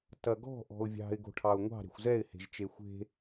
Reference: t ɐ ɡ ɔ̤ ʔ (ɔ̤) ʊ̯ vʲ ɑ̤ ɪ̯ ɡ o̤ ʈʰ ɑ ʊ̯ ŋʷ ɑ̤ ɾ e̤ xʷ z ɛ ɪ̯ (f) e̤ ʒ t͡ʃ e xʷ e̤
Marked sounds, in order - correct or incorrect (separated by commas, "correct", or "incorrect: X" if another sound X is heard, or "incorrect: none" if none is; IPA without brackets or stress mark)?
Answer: correct, incorrect: h